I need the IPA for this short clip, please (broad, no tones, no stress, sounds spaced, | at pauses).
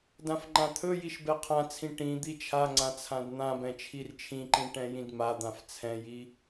d ã f ŋ͡ǃ ã t̪ʰ ɵ j i ʃ b ɛ qʰ ã t͡sʰ ĩ ʈ ĩ d̪ i t͡ʃʰ a ŋ͡ǀ ã t͡sʰ ã d n̪ ã b ɛ̃ t͡ʃʰ i r t͡ʃʰ ĩ ǃ ĩ ʈ ɛ̃ j ĩ d m a d̪ ã f t͡sʰ ɛ̃ j i